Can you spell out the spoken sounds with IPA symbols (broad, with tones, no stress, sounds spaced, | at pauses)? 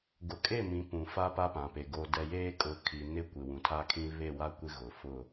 ɡ ʊ˨ kʼ e˦˨ m ĩ˨˦ p ũ˨ f a˦ p a˦ p ã˨ p e˨ ɡ o˨ d ɛ˨ j eː˦ kʼ ʊ˨˦ kʰ i˨ n ɪ˦ kʷ ɪ˨ w ũ˨ tʰ a˦ kʰ ĩ˦ β e˦˨ w a˦ kʷ ɪ˦ ɣ ʊ˨ f ʊ˦˨